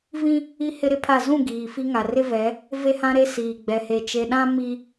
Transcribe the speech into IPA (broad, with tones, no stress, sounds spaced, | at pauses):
v ĩ˦ | i˦ h ɪ˦ ɾ ɪ˦ pʰ a˦˨ z ũ˦˨ ɡ iː˨ f i˦ ŋ a˨ r ɪ˦ v ɛ˨˦ | v e˦ h ã˦ ɾ e˦ s iː˨ ɡ͡b ɛ˨ h e˨ t͡ʃ e˨ ɗ ã˦ m i˦